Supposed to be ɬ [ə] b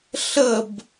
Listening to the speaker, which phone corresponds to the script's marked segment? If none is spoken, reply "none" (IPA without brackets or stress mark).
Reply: ə